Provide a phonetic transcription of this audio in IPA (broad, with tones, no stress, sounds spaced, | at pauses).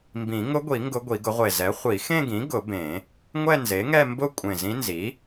m b ĩ˨˩˦ ŋ ʊ˧˥ ɡʷ i˨˩˦ ŋ ɡ ʊ˧˥ ɡʷ i˨˩˦ ɡ ʊ˩˥ ʁʷ e˨˩ z ɛ˩˥ χʷ i˨˩˦ x ẽ˥˧ ɡ ĩ˩˥ ɡ ʊ˨˩˦ b ẽ˨˩˦ | ŋʷ ɛ˥˧ n z e˩˥ ŋ ɛ˥˧ m b ʊ˥˧ kʷʼ ẽ˨˩ z ĩ˧˥ n z i˩˥